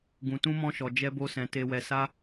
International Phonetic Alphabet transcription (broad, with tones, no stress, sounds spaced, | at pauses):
ɡ ũ˧ t ũ˦ m ɔ̃˦ ʃ ɔ˧ d͡ʒ ɛ˦ b o˦ s ɛ̃˧ t e˧ w ɛ˧ s a˦